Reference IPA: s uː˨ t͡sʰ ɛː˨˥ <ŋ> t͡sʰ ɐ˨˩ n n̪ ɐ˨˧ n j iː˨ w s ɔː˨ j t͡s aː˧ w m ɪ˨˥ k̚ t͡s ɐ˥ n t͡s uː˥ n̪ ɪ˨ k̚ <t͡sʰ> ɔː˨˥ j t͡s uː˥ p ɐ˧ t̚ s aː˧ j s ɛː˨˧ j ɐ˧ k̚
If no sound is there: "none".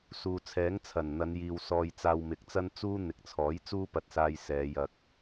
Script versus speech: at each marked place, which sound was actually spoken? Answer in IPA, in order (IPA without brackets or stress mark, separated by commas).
ŋ, t͡sʰ